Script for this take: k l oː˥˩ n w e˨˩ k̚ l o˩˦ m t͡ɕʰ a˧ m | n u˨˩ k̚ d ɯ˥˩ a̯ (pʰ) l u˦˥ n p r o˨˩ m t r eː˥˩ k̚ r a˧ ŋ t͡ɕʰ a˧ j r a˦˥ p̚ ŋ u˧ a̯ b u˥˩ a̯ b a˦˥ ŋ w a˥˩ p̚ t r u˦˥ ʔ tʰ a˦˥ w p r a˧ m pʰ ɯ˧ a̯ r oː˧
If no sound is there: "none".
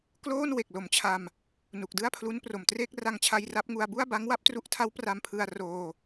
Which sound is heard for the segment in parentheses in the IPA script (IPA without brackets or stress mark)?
pʰ